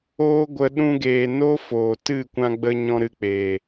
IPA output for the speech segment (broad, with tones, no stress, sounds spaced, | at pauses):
oː˧ ɡʷ ə˧ ɗ ũ˧ ɡ eː˨ n o˦ f oː˨ t ɨ˦˨ kʷ ã˧ ɡ͡b ə˧ ɲ ɔ̃˦ ɾ ɨ˧ k͡p eː˨